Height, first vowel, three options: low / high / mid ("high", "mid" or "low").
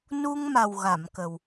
high